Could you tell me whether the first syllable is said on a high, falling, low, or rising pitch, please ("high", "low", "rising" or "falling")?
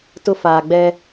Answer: high